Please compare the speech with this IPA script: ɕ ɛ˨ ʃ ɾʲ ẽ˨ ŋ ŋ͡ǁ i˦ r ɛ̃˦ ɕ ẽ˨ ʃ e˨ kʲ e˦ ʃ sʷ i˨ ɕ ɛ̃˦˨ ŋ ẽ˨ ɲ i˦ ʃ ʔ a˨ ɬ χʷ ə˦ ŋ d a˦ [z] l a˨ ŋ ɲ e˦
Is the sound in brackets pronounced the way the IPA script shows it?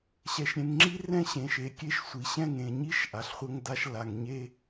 no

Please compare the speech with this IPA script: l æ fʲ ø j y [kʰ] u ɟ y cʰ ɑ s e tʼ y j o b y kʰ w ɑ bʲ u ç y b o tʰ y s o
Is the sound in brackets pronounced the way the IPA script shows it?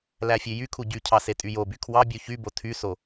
yes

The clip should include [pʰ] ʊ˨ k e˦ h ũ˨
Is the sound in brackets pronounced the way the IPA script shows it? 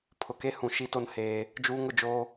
yes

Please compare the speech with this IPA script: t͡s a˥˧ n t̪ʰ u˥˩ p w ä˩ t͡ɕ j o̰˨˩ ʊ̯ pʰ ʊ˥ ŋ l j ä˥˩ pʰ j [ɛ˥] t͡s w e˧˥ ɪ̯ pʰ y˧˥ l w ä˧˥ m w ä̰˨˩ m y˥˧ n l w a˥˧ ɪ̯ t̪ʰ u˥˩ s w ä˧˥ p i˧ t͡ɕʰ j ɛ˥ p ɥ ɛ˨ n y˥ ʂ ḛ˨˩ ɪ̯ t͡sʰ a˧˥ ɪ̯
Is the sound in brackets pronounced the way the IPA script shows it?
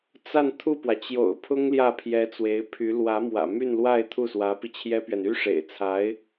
no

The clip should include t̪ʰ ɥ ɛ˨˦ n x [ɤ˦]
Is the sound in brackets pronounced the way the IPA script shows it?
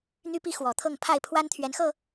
no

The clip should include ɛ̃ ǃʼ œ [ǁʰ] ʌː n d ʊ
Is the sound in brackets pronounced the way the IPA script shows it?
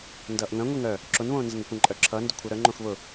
yes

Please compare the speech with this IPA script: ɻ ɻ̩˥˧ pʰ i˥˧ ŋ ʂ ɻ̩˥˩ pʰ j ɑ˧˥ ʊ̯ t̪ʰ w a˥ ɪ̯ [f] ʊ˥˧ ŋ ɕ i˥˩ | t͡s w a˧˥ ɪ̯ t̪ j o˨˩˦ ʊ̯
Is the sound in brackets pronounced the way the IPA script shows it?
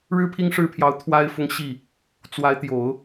yes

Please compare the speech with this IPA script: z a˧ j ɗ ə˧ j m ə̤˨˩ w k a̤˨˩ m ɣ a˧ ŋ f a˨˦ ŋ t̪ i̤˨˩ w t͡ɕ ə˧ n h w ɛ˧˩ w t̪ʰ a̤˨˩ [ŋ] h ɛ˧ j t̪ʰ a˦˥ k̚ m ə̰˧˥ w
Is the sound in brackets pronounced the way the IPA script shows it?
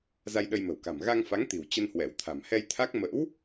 no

